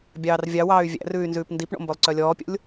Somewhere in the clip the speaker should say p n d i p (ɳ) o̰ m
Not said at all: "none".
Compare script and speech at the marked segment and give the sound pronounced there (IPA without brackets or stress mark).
ɳ